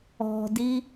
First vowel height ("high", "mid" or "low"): mid